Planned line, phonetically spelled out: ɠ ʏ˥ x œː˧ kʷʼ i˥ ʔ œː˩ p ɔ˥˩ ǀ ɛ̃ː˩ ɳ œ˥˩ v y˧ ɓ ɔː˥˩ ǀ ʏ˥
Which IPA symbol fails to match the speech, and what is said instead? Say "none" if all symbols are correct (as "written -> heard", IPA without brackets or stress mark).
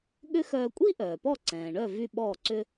none